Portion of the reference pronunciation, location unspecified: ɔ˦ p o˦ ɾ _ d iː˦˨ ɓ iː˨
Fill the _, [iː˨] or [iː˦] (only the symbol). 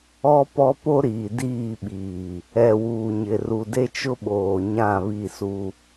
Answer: iː˨